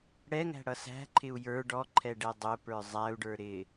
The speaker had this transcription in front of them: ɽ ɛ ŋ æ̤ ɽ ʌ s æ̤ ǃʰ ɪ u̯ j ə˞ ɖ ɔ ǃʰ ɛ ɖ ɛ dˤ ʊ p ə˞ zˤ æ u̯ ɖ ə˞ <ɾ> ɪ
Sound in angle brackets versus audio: correct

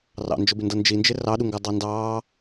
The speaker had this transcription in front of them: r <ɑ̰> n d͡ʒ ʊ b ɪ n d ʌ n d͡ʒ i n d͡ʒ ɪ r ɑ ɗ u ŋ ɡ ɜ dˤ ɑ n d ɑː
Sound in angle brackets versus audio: correct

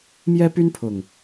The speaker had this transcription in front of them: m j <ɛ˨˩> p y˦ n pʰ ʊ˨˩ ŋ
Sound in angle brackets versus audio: incorrect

